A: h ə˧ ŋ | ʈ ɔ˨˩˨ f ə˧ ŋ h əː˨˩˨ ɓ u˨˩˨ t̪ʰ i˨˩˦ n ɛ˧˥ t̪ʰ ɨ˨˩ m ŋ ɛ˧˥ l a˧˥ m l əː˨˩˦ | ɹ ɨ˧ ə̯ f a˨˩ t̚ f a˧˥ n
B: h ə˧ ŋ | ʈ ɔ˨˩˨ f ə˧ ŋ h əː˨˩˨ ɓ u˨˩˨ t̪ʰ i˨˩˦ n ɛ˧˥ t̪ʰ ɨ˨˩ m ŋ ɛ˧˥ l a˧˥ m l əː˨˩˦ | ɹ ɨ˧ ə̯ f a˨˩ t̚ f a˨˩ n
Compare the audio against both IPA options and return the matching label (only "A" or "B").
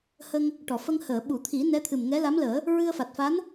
A